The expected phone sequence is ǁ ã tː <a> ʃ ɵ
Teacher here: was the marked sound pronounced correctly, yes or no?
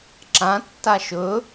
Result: yes